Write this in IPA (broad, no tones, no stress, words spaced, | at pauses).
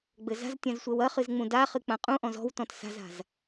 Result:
ɡ͡bɘza̤ztʲãz sʷɛwɐχɨz ŋ͡mũdaχɨ k͡pãqʼũʔɔ̃z ɔ̤w tɔ̃tsa̤za̤z